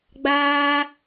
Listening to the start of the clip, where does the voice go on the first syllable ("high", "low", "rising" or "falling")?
high